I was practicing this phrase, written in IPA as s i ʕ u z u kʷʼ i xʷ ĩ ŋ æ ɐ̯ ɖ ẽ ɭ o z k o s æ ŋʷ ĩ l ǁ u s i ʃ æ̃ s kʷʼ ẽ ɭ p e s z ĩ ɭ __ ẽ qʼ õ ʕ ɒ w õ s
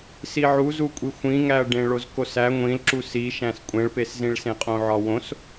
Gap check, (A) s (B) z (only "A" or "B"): A